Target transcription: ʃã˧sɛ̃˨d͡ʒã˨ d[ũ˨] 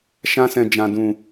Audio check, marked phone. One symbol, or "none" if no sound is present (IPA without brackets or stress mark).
ũ˨